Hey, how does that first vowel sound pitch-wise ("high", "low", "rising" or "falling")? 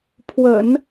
low